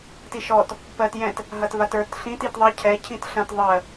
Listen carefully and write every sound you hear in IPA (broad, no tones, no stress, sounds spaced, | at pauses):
t i ʃ ɔ t | p ɜ t j ɛ̃ t | ɦ ɐ t v a t ə˞ t ɬ ĩ t i t ðˤ ɐ cʰ ɛ cʰ ĩ t ɬ ɐ̃ t ðˤ ɜ